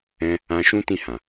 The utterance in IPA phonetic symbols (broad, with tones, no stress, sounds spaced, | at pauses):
ɛ̃˦ | ã˧ ʃ ũ˦ t ĩ˦˨ h ã˨